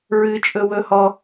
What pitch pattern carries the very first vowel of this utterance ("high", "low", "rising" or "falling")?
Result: high